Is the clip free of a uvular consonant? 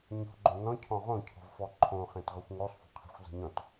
no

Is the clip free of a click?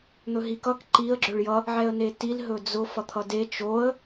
no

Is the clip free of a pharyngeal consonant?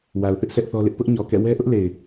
yes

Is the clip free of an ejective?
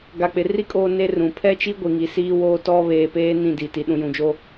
no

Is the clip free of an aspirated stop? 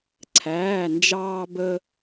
no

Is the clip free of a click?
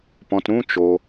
yes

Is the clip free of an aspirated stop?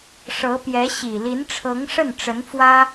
no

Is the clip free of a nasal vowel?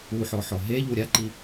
yes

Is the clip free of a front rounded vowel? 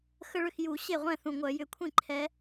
no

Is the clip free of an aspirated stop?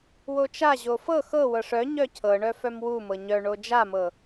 no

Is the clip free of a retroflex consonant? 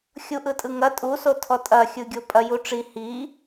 no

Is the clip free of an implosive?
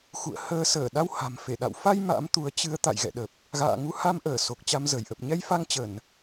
no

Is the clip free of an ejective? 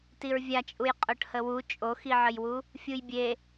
no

